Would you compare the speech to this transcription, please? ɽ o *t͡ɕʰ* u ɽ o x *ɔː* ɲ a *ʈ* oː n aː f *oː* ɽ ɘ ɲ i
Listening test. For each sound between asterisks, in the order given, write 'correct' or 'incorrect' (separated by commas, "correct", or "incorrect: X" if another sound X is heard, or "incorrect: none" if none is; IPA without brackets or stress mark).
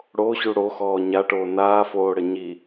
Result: incorrect: ɕ, correct, correct, correct